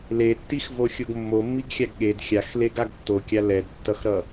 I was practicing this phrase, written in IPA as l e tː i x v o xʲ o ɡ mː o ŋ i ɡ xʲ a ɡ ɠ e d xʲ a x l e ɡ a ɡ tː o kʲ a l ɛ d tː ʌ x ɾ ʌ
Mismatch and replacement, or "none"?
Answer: ŋ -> mː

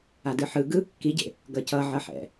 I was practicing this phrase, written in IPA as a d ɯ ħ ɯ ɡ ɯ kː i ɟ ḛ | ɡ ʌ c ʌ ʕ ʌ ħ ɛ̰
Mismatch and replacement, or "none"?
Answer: none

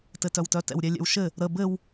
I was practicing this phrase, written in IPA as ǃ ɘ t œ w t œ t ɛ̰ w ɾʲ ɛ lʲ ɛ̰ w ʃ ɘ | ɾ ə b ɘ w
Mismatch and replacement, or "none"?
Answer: ǃ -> t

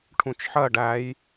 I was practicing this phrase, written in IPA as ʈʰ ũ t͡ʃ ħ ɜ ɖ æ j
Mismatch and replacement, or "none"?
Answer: none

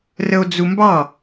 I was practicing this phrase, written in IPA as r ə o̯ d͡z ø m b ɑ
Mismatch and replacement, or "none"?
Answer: ø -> u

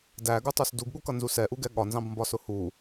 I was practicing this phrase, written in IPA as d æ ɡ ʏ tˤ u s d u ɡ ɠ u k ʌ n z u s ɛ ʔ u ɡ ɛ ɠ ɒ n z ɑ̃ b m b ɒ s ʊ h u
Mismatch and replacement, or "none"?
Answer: ʏ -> u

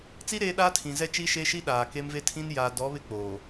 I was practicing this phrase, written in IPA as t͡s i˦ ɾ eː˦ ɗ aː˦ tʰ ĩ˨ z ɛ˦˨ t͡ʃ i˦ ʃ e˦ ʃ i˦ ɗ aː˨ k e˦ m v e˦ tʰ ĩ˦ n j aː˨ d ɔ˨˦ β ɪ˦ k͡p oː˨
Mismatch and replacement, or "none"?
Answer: none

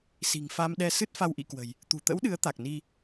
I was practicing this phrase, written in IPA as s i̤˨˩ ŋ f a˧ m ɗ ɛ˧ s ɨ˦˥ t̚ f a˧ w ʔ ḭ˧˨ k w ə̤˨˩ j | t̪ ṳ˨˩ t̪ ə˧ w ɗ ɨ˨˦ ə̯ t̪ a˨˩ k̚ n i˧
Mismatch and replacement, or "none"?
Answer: ə˧ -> ə̰˧˥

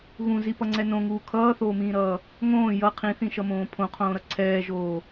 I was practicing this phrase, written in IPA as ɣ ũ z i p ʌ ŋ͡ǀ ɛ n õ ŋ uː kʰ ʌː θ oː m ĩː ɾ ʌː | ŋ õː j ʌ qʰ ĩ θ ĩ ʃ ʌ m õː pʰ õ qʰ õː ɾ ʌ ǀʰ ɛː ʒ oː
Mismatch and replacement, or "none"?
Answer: none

